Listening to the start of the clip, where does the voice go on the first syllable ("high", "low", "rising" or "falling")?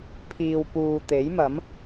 low